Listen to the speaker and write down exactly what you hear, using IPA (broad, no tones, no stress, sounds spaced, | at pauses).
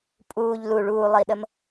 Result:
pʼ uː ʎ l u ɭ uː lˠ iː ɗ ə m